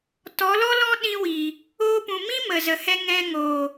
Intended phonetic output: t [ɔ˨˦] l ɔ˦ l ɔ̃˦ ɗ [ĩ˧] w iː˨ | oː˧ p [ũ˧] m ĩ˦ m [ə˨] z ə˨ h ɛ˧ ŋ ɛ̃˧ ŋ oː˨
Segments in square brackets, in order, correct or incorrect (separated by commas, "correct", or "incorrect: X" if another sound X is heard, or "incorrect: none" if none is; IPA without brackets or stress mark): correct, correct, incorrect: ũ˨, correct